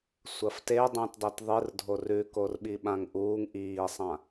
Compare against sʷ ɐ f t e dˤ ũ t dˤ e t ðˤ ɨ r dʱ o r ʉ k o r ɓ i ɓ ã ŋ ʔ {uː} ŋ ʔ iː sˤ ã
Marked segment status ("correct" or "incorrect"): correct